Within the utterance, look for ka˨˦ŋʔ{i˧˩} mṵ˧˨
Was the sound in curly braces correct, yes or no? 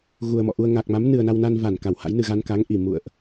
yes